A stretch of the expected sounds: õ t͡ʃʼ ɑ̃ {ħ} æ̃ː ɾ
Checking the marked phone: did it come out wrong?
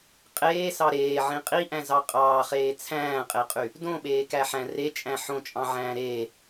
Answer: yes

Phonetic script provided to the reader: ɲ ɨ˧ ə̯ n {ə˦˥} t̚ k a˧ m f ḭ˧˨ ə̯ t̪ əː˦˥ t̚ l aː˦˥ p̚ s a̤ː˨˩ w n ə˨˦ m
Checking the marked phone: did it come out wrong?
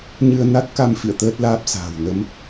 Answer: yes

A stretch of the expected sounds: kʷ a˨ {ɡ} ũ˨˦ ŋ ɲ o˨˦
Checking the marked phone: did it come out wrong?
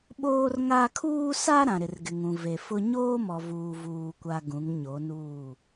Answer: no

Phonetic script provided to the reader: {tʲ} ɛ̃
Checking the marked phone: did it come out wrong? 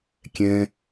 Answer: yes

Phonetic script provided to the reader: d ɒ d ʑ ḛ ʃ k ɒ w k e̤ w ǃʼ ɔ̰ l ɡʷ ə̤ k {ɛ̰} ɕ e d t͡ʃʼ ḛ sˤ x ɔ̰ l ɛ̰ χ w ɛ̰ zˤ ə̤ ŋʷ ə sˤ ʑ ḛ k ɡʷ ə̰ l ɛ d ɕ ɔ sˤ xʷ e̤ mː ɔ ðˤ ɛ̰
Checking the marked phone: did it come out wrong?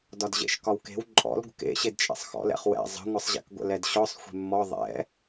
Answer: yes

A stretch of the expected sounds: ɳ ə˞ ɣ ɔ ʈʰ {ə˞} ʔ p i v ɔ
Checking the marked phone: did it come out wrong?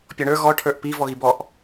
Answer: no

